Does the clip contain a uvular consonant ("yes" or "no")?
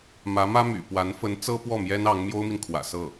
no